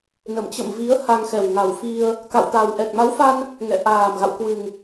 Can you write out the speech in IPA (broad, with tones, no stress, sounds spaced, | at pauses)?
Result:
n ə˧˩ m t͡ɕ ə̰˧˨ m v i˨˦ ə̯ h a˧ ŋ x ɛ˨˩ w ŋ a˨˩ w f i˧ ə̯ | k a̰˧˨ w t̪ a˨˩ w ʔ ɛ˨˩ k̚ m a˨˦ w f a˧ n | ŋ ɛ̰˧˨ ʔ aː˨˩ m ɣ a̰˧˨ w k w ɨ˨˩ ŋ